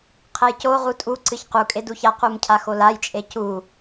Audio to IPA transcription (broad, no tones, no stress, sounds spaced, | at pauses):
qʰ ɛ j c o ʁ u tʼ u ǀ ɨ ç q u kʼ e d u ç a q u m cʰ a x o l a j t͡ʃʼ e c u